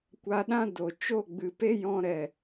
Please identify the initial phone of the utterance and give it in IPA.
kʷ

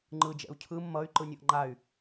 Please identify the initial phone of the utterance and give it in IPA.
ŋ͡ǃ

